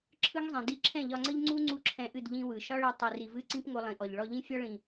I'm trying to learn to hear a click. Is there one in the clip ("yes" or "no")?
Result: yes